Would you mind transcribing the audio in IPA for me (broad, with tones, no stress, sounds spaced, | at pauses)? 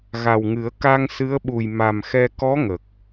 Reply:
ɣ a˨˩ w ŋ ɨ˨˩˦ ə̯ k a˧ ŋ s ɨ˧˥ ə̯ ɓ u˨˩ j m a˨˩ m x ɛ˧ k ɔ˧˥ ŋ ə˨˩ k̚